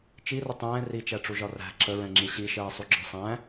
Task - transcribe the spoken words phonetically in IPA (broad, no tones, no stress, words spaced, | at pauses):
t͡ʃirə tˤɛ̃ː rit͡ʃæʈ͡ʂuʒɒ ræ̤ ǁəɹɛ̃ŋ͡ǁi ɕiʃɜːsˤuɡ͡ǁɒ sˤæ̃